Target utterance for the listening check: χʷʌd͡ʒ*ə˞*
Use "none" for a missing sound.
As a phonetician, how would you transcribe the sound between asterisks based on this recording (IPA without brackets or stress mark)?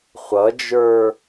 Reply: ə˞